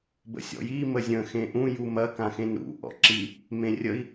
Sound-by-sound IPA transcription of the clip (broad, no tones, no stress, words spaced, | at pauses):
bə̰sʲɔ̰ji məzʲə̃ xẽʔũ jumɐ kãxẽnɾṵ ʔɔ̰ǁi | mẽrʲəi̯